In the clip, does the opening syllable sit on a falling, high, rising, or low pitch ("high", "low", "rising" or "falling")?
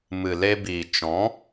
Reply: low